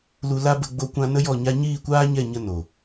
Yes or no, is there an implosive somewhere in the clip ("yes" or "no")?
no